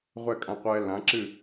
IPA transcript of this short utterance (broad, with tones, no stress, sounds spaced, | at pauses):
ʁʷ ɛ˦˨ kʼ ã˧ qʷ ɛː˧ l ã˨˦ ǁ ɨ˦˨